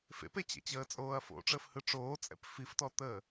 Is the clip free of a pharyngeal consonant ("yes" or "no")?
yes